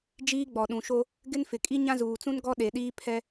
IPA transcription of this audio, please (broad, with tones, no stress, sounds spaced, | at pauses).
d͡ʒ iː˦ ɡ͡b ɔ˨ ɗ ũ˨ ʃ o˦ | ɡ ɪ˦ n f ɪ˨ kʼ i˦ ɲ ã˦ z uː˨ t͡s ũ˦ n ɡ ɔ˦ ɗ e˨ ɗ iː˦ pʰ ɛ˦